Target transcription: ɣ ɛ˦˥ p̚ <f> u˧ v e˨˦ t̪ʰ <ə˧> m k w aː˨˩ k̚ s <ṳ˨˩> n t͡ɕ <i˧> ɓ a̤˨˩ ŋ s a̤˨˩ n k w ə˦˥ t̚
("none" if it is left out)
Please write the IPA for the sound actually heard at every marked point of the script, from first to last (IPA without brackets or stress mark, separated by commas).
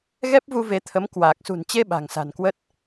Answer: v, ə˨˦, ṳ˨˩, e˧